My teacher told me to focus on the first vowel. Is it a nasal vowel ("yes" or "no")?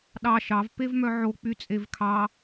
no